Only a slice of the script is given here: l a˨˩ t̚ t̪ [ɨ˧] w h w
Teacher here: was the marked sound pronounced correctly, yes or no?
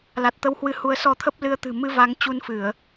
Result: no